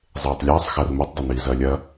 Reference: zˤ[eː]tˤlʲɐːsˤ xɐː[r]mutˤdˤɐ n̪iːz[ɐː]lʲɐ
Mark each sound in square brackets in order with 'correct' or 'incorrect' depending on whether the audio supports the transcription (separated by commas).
correct, correct, correct